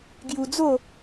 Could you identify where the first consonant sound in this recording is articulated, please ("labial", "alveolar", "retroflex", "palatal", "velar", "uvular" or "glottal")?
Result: velar